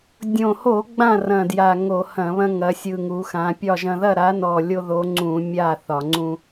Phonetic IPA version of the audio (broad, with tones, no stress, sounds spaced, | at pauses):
dʲ õ˨˩ h o˧˩˧ ɡ͡b ã˥˨ r ɐ̃˨˩ d j a˨˩ ŋ o˧˩˧ h ɐ̃˧˩˧ β ɐ̃˦ ŋ ɐ˩˧ sʲ ɯ˨˩ ŋ u˩˧ x ã˩˧ pʲ ɒ˥˨ ʒ ɐ̃˦ ð ɐ˥˨ ɾ a˨˥ n ɔ˨˩ lʲ o˦ ð o˨˥ ŋ͡ǀ ũ˧˩˧ mʲ a˥˨ θ ɒ˧˩˧ ŋ͡ǀ ũ˦